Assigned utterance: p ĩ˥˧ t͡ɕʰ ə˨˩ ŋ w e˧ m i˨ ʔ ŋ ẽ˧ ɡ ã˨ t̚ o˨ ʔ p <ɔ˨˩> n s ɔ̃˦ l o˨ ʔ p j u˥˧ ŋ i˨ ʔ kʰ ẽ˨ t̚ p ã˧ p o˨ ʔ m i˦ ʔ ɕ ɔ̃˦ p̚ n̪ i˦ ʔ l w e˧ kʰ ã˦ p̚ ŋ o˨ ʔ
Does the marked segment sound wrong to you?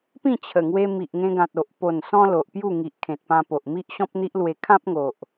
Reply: yes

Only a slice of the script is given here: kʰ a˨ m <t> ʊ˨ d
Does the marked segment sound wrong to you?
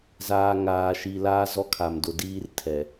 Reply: yes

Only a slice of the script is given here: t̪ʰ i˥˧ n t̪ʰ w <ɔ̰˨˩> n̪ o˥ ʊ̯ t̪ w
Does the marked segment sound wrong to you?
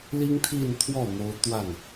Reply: yes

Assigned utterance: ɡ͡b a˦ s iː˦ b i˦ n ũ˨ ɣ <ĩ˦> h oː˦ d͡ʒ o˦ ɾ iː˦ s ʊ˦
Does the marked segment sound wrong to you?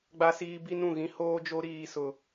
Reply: no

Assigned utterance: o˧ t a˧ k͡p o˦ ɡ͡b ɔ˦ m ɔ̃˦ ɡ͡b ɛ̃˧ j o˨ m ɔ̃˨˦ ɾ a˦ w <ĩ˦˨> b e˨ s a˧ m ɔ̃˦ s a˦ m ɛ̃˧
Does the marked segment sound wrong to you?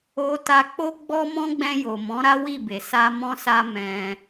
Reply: yes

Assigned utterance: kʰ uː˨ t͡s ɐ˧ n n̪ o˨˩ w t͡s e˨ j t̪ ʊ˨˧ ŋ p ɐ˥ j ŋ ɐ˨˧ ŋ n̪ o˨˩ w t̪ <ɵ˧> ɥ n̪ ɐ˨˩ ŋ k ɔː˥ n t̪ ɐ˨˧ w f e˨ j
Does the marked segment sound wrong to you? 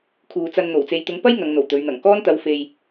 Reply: yes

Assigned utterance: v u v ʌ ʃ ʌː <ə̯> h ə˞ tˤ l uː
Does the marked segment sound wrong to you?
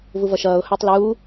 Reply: yes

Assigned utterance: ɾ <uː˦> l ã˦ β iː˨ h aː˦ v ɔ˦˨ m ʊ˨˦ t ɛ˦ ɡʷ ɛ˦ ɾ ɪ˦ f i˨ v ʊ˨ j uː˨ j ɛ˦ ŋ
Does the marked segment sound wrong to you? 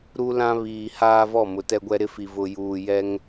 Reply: yes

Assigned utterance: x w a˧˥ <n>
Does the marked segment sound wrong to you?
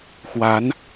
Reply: no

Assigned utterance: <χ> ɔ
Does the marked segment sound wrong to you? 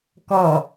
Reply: yes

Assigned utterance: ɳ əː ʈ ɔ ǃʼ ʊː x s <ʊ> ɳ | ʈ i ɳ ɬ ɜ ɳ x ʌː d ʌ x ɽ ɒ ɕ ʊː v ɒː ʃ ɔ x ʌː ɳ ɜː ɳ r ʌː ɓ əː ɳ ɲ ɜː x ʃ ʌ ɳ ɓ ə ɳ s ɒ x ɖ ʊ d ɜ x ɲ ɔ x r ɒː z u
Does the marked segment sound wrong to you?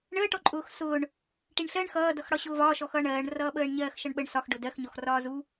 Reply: yes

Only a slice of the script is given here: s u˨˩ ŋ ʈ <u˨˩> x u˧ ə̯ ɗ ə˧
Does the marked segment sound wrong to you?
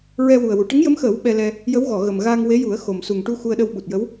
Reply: yes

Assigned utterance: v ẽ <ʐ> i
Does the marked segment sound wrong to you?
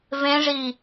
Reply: no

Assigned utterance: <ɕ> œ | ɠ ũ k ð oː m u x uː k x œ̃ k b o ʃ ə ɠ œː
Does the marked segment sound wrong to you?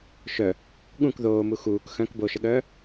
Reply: yes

